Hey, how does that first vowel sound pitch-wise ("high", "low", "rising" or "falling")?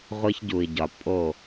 high